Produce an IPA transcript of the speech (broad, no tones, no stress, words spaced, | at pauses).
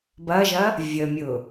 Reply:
bɐʒɐ | vʲəmʲʊ